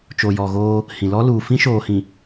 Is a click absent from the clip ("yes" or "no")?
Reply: yes